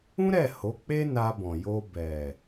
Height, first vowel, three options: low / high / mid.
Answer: high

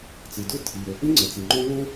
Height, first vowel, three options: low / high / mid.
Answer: high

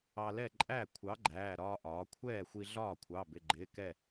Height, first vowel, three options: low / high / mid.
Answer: low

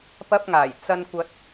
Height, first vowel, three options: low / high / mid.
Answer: low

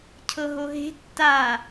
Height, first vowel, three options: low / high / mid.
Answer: mid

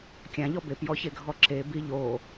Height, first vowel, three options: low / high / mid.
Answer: low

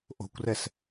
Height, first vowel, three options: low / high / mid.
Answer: mid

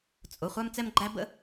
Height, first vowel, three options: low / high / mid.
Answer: high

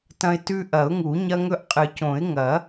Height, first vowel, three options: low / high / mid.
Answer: low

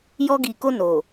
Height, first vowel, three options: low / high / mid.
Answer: mid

